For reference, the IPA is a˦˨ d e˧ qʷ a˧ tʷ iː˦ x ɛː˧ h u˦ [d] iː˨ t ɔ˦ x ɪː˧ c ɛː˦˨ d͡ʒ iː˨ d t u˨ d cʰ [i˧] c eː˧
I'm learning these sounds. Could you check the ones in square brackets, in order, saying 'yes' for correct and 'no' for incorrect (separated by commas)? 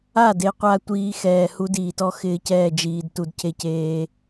yes, no